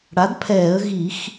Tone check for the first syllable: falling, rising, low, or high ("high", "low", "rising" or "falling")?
rising